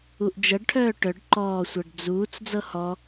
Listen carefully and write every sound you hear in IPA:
u ʔ d͡ʒ ɤ ɖ ʈʰ œː ʈ œ ɖ ǃ ɔː sʷ ɤ ɖ d͡z uː t͡s d͡z ɤ h ɔ

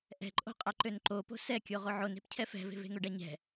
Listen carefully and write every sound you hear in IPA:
ʔ ɛ̤ ǃʼ o̤ qʼ a ǃ ø n ǃ o p o̤ s ɛ kʲ o ʁ o ʕ o n e̤ p cʰ ɛ f ɛ̤ v e̤ v e̤ ŋ o ɖ a ɲ ɛ̤

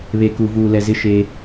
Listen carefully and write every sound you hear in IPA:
β e˨ k u˨ v uː˨ l ɛ˨ z ɪ˦˨ ʃ e˦

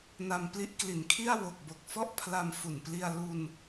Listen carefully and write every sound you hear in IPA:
n a˧ m p l i˦˥ ʔ k l i˩˦ n kʰ i˥˩ a̯ w o˨˩ k̚ b o˨˩ k̚ f ɔ˥˩ ʔ pʰ l a˧ m f u˨˩ n p l i˧ a̯ l u˧ n

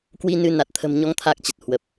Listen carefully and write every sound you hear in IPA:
k w i˧ n ɨ˧ n a˨˩ t̚ t̪ʰ ə̤˨˩ m ɲ ɔ˨˦ ŋ t̪ʰ a˦˥ k̚ t͡ɕ ə˨˩ t̚ h w ə˨˩ p̚

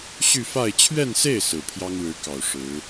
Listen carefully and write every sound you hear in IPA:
ɕ y˥˧ f a˥˧ ɪ̯ t͡ɕʰ ɥ ɛ˥˧ n s e˥˩ ɪ̯ s ɹ̩˨˩ pʰ j ɑ˥ ŋ ɻ ɻ̩˧˥ k ɑ˨˩ ʊ̯ ʂ ɻ̩˧˥

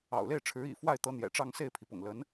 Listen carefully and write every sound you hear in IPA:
ɑ̰˨˩ ʊ̯ l e˥˩ ɪ̯ ʈ͡ʂʰ ɻ̩˧˥ ḭ˨˩ f w a˥˩ ɪ̯ t̪ ɤ˧˥ n̪ j ɛ̰˨˩ ʈ͡ʂ ɑ˥˧ ŋ s e˥˩ ɪ̯ pʰ i˩ p ʊ̰˨˩ ŋ l ə˧˥ n

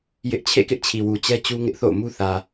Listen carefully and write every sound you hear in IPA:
j ɪ˦ ʔ t͡ɕʰ ḛ˦˨ k ɪ˦ ʔ t͡ɕʰ i˨ w u˨ t͡ɕ ɛ˦ t͡ɕ u˦ ŋ ɪ˦ ʔ θ o̰˦˨ ʊ̯ m u˦ θ ä˨

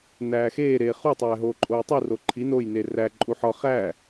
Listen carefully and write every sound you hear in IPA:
n æː x eː ɾ eː χ u tˤ æː ɦ oː ǃʼ oː tˤ u r o ǃʰ i n o j n e r æ ǃʼ u ħ ɒ χ æ

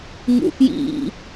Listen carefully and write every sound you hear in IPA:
ŋ ṵ f j ḭ

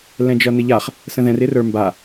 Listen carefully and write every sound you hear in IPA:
l ɛ̃ d͡ʒ ʌ n ɪ ʎ a χ | s ə̃ ð ɛ̃ r ɪ r ə˞ m b a

